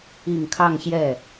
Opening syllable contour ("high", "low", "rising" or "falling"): low